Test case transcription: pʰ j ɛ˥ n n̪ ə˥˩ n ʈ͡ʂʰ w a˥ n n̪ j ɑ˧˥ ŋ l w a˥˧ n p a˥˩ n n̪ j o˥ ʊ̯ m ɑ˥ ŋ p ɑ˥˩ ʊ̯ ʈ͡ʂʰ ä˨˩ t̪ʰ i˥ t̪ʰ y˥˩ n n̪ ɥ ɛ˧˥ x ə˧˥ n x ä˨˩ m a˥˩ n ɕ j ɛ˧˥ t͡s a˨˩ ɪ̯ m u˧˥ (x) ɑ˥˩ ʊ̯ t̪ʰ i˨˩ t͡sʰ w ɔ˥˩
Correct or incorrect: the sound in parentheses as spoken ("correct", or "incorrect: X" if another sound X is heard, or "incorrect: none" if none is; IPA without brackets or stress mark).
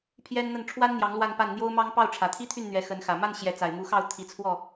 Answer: correct